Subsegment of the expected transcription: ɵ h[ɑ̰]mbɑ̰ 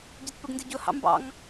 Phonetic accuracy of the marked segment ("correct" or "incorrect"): correct